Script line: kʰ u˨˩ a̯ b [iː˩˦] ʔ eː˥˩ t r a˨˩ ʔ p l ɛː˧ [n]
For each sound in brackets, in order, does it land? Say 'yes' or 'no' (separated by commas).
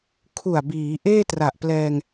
yes, no